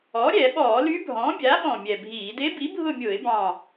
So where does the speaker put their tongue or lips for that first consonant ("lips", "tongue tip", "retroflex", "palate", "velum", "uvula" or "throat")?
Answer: tongue tip